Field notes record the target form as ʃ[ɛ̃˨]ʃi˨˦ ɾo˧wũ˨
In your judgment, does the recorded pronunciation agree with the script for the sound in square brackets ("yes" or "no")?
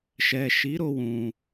no